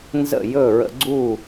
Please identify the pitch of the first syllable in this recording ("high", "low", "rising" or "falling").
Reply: falling